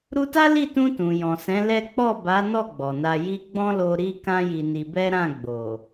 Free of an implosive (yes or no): yes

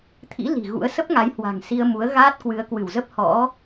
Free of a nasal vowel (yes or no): yes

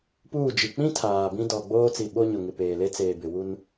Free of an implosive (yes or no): no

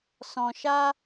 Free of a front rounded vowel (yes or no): yes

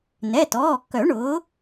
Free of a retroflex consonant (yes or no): no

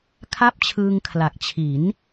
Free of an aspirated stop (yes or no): no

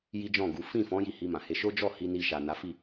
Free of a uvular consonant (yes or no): yes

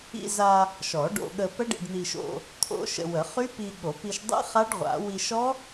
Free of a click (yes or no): yes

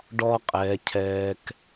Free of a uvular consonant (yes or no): no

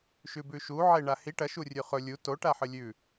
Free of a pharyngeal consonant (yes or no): no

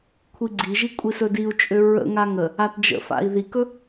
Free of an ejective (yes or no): no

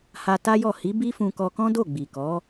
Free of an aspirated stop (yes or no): yes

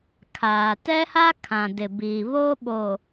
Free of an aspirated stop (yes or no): no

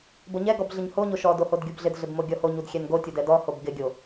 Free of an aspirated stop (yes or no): yes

